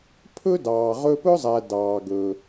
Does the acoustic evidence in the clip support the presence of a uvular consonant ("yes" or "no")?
yes